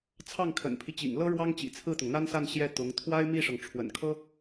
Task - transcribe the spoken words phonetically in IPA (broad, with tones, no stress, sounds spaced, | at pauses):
t͡sʰ ɑ˥˩ ŋ kʰ ə̰˨˩ n pʰ i˦ t͡ɕ ḭ˨˩ ŋ l ɤ˥ ɻ w ɑ˥ ŋ t͡ɕ ḭ˨˩ t͡sʰ ɹ̩˥˩ t̪ ʊ˩ ŋ n̪ a˥ n s a˥˧ n ɕ j ɛ˥˩ t̪ ʊ˧˥ ŋ t̪ʰ w a˥ ɪ̯ m i˥˩ ʂ ɤ˩ ŋ ʈ͡ʂʰ w ə̰˨˩ n kʰ ɤ˥